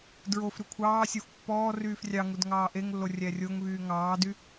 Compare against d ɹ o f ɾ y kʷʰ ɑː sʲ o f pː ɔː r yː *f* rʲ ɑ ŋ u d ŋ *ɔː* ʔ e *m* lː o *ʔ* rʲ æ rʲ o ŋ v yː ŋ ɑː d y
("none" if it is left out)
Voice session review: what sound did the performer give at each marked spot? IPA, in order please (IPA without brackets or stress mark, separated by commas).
f, ɑː, ŋ, none